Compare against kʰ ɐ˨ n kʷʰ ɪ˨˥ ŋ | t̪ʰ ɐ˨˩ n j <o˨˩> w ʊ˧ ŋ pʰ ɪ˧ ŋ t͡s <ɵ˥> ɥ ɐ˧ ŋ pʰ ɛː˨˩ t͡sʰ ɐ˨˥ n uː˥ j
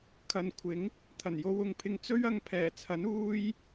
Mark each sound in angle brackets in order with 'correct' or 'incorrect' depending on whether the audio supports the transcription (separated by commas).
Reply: incorrect, correct